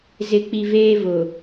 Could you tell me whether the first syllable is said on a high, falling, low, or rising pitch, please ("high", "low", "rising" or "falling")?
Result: low